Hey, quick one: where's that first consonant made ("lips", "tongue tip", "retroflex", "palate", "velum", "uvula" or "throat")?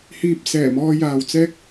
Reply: throat